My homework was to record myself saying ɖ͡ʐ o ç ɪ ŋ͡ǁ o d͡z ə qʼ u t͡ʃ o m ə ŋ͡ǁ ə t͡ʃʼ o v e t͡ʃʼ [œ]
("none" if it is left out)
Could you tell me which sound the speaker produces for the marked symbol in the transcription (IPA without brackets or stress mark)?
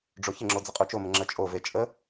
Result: ə